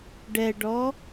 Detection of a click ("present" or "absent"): absent